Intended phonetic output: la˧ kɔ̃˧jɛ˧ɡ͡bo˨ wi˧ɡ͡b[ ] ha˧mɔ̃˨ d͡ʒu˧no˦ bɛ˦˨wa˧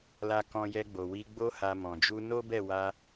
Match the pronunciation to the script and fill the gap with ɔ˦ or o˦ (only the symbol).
o˦